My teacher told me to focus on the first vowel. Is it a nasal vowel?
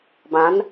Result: yes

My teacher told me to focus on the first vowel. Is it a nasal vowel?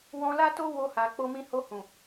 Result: yes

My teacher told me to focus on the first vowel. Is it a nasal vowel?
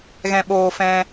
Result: yes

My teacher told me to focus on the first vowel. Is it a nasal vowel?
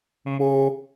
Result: no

